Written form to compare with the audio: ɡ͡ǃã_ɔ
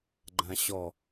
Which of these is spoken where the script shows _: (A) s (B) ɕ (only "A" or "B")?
B